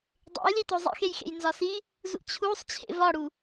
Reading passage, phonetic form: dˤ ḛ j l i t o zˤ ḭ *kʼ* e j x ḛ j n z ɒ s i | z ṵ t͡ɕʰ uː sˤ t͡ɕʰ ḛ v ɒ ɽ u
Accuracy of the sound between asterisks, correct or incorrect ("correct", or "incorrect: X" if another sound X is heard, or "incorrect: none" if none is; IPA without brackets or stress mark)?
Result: incorrect: x